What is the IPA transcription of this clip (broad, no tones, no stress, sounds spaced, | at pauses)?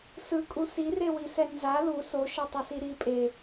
s ɯ kʼ u s i r e w i s ɛ n z a l u s o ʃ ʌ tˤ ʌ s i ɾ i pʼ e